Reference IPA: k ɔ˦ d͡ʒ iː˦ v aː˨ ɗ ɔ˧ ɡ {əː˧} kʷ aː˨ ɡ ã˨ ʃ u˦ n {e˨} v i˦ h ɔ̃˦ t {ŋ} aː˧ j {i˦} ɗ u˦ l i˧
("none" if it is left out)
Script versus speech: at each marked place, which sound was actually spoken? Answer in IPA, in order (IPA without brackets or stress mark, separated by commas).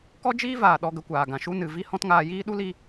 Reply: ə˧, ɨ˨, ŋ, iː˦